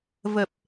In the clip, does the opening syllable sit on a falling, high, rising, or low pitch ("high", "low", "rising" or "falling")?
low